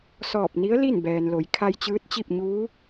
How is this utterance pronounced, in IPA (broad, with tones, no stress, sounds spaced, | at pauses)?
s ɔː˧˩ p̚ n i˧˥ ə̯ l i˥˨ n b ɛː˩ n l o˩˧ j kʰ a˧ j t͡ɕ ɯː˧˥ t̚ t͡ɕ i˥˨ p̚ ɲ uː˧˥